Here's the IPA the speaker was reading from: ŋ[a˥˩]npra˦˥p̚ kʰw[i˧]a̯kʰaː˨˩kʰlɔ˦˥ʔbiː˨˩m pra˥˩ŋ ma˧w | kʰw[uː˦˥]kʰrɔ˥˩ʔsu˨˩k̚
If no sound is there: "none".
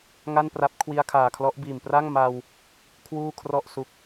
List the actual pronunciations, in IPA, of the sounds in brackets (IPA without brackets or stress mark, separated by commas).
a˥˩, i˧, uː˥˩